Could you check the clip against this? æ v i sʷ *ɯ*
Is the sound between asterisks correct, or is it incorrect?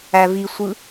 correct